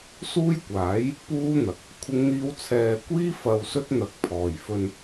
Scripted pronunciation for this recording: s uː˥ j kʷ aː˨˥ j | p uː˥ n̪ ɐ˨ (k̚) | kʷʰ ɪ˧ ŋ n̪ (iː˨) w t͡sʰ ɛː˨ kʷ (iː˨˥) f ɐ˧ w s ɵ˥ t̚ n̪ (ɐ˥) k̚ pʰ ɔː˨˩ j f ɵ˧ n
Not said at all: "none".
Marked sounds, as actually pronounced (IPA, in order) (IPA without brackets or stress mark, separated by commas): k̚, iː˧, iː˥, ɐ˨˥